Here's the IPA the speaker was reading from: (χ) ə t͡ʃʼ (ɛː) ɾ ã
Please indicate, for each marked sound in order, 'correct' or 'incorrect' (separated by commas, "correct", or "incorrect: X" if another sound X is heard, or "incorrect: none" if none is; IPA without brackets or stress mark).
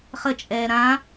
correct, correct